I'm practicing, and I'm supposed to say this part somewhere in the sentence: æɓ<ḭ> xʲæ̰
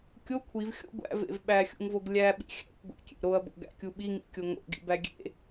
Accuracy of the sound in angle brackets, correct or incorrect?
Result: correct